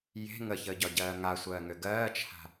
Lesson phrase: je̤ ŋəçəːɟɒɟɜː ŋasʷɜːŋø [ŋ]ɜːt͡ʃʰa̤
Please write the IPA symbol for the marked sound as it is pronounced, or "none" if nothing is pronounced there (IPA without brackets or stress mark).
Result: ɡ